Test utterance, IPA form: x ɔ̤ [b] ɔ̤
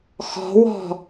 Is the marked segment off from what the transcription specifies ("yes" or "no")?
yes